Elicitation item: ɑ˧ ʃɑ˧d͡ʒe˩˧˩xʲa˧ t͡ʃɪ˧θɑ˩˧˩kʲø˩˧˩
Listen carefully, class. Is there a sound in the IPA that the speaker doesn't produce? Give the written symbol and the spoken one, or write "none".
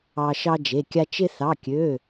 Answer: xʲ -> kʲ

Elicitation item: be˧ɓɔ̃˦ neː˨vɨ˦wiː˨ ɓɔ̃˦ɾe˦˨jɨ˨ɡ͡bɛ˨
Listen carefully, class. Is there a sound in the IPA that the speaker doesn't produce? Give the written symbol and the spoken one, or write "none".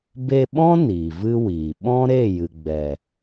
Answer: eː˨ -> iː˨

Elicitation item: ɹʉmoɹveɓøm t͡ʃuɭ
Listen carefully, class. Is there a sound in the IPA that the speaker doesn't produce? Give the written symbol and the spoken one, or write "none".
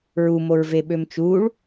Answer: ʉ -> u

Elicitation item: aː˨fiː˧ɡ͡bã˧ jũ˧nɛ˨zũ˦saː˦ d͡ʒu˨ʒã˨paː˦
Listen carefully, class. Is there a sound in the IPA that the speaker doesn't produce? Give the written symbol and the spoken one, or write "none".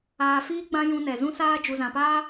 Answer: ʒ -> z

